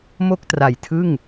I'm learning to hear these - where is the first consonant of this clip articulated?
lips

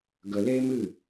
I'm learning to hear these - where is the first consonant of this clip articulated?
velum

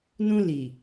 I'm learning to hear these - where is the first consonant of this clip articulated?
tongue tip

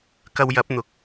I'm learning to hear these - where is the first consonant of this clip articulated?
velum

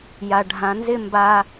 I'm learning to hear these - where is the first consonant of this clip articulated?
palate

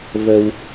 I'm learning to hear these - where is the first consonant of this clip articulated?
lips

